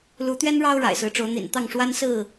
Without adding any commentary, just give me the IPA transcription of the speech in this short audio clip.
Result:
l u˨˦ t̪ ɥ ɛ˦ n ɻ ɑ˦ ʊ̯ ɻ a̰˨˩ ɪ̯ s ɹ̩˨˦ ʈ͡ʂ o˨˦ ʊ̯ n̪ ḭ˨˩ n t̪ ɑ˥˨ ŋ ʂ w a˦ n s ɹ̩˥˨

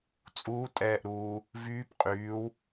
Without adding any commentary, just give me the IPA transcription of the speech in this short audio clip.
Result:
t͡sʼ uː tʼ ɛː ʔ ɾ uː | v yː p qʼ yː w

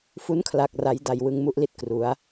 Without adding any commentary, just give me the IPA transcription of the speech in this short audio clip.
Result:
f u˦˥ n kʰ l a˨˩ k̚ r a˩˦ j d a˨˩ j w ɯ˧ ŋ m u˥˩ ʔ l i˥˩ t̚ k r u˩˦ a̯

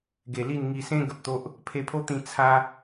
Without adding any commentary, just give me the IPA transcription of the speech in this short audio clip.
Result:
ɡ e˨˩ l i˥˧ n ŋ i˧ s ẽ˦ ɡ ə˨ p̚ t̪ o˦ ʔ | pʰ e˧ pʰ o˦ t̪ ĩ˧ t͡sʰ a˦

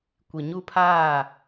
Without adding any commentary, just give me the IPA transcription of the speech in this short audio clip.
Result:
kʷ i˨ ɲ u˦ pʰ aː˦˨

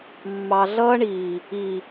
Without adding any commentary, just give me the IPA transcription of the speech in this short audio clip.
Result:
mː ɑ˨ ɮ ʌː˧ ɳ iː˨ | i˨

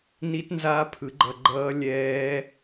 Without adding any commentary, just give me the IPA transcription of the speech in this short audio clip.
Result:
n i˦˥ t n z aː˦˥ pʰ ɯ˨˩˦ ɡ͡ǃ ʌ˧ ɡ͡ǃ ʌː˦˥ lʲ ɛː˦˥

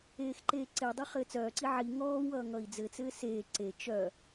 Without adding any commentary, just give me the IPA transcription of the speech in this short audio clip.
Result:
eː x ǃ eː ǀ e dˤ ɘ χ ɘː t͡s œː ǀ i ʕ i ŋ ɔː w ʌː ŋ ʌ i̯ d͡z ɘ t͡s ɘː s eː ǀ e t͡ʃ œ

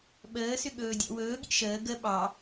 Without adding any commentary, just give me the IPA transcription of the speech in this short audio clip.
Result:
ɓ əː s ʏ ɠ ɵː dʲ ɔ̰ w ɵː ɠ ḭ ʃ əː ɡ ə ɓ ɑ

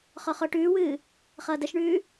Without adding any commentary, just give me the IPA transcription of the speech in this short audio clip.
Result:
χ ɔ χ ɔ ʈ ʉː w ɨː | χ ʌː d ə ʃ ɳ ʉː

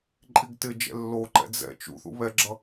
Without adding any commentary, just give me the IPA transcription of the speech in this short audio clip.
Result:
ǃʼ i ɡ t ɪ d͡ʒ ɛ̰ lː o ǃ ɛ̰ d͡z ɛ̰ t͡ʃ ṵ θ ṵ β ɛ ɡ͡ǁ ʌ

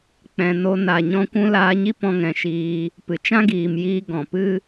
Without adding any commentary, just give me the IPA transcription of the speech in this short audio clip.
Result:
k͡p ɛ̃˨ n o˧ n a˨ ɲ ɔ̃˧ kʷ ũ˧ l aː˧ ɲ i˦ p ɔ̃˧ ŋ ɛ̃˨ ʃ iː˧ | p ɨ˨ t͡ʃ ã˦ ɡ iː˨ m j iː˧ ɡ ɔ̃˨ p ɨ˦

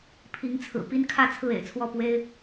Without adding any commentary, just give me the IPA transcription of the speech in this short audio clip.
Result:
pʰ i˨˦ ŋ t͡sʰ ɹ̩˨˩ p i˦ n kʰ ä˥˨ t͡sʰ ɹ̩˥˨ ḛ˨˩ ɪ̯ t͡sʰ w ɔ˥˨ p w e˦ ɪ̯

